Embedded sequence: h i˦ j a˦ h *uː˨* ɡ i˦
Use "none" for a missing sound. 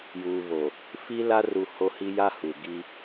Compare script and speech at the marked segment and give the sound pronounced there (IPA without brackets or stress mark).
u˨